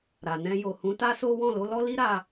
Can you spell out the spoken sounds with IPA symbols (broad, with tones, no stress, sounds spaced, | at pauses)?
ɾ a˨ n ɛ̃˧ j o˨ h ũ˨˦ t a˦ s o˦ w ɔ̃˦˨ l o˨˦ l ɔ˦ l i˦ ɾ a˧